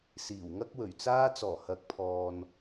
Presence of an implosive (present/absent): absent